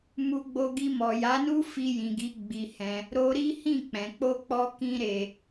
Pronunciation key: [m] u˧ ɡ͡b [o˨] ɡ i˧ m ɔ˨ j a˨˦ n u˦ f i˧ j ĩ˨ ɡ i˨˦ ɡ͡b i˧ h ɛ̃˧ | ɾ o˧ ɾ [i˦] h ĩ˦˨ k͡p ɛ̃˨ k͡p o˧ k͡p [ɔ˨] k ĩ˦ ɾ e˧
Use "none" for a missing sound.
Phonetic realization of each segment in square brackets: m, o˧, i˦, ɔ˦

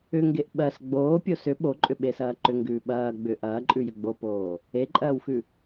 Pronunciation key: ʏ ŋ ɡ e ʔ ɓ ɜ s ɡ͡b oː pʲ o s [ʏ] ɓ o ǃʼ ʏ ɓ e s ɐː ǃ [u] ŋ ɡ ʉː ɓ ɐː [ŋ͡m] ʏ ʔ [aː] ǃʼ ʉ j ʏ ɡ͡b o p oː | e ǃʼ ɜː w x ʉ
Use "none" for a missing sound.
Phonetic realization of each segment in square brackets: ʏ, ʏ, ɡ͡b, ɐː

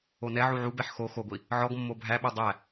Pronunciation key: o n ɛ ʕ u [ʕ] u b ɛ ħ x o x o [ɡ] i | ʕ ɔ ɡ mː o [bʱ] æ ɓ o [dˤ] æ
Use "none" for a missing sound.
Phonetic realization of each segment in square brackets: ʕ, ɡʷ, bʱ, dˤ

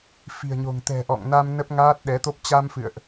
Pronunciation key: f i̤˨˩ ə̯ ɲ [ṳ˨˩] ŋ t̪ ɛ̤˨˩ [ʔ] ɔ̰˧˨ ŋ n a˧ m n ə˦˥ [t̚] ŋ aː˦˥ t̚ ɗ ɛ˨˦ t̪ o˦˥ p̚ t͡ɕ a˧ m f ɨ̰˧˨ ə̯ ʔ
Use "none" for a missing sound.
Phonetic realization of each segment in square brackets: o̤˨˩, ʔ, p̚

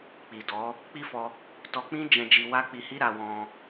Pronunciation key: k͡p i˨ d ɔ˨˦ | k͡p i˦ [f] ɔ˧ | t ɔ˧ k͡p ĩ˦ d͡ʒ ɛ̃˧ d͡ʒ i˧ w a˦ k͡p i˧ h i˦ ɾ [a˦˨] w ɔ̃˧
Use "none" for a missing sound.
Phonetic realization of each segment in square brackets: f, a˧

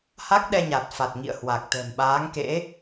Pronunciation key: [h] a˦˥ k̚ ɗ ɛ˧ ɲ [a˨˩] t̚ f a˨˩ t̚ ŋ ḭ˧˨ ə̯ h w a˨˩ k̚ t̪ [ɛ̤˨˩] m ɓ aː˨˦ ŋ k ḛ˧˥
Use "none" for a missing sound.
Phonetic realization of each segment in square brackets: h, a˨˩, ɛ̤˨˩

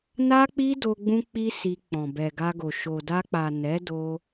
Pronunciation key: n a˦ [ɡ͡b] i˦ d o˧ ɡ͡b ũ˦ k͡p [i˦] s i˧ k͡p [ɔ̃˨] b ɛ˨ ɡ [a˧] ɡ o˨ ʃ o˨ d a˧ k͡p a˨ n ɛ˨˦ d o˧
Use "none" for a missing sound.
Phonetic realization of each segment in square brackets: k͡p, i˦, ɔ̃˨, a˧

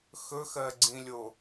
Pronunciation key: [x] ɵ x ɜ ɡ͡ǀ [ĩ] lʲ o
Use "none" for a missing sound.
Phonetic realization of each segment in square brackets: x, ĩ

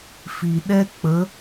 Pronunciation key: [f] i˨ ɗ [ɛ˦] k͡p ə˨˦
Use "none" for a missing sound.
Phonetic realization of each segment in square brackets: f, ɛ˦

